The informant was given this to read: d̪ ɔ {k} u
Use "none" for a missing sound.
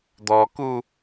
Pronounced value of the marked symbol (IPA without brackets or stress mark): k